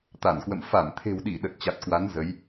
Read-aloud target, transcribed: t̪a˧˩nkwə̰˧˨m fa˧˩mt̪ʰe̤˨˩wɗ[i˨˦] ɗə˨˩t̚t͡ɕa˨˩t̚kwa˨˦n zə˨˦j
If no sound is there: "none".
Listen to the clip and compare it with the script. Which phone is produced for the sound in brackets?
i˧˩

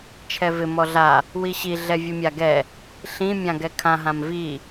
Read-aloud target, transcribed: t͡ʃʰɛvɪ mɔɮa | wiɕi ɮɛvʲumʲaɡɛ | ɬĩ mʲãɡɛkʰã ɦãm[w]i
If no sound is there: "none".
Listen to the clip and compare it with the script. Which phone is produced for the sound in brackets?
v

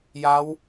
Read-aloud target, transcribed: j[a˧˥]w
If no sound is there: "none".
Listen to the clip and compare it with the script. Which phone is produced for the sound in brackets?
a˧˥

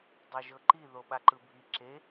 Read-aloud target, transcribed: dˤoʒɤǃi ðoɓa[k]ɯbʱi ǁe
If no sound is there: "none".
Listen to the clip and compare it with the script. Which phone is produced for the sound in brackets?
ǃ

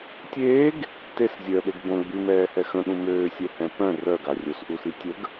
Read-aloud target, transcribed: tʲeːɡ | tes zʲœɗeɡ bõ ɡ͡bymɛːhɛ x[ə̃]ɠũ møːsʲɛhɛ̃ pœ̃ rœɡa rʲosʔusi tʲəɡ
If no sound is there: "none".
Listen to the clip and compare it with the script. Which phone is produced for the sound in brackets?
ə̃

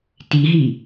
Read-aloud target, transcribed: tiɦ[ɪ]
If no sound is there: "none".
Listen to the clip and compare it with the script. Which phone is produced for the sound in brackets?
i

